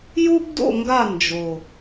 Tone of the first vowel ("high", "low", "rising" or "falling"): high